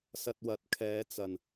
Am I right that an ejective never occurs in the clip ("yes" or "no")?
yes